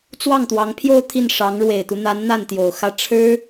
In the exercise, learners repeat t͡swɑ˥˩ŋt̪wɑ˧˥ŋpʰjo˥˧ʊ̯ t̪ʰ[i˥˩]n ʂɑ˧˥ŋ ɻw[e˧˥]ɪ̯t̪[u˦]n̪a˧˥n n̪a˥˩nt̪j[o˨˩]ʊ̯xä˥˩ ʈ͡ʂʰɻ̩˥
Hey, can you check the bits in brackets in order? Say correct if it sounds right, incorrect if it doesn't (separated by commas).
correct, incorrect, correct, correct